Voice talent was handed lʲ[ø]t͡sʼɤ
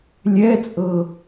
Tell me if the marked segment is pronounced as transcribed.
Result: no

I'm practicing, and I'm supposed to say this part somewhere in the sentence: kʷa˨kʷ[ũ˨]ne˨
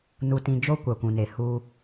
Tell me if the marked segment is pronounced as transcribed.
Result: yes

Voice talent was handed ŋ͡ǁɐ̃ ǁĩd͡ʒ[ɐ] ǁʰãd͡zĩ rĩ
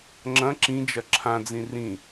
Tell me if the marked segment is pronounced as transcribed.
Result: yes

